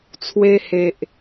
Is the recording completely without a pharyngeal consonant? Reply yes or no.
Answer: yes